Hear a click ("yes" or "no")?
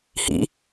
no